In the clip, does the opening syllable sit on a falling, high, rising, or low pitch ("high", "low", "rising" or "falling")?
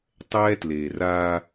high